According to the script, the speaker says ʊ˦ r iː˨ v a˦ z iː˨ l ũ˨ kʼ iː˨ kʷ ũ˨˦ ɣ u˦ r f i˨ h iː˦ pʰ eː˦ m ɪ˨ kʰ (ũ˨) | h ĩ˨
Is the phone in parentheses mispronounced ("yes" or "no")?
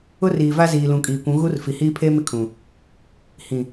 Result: no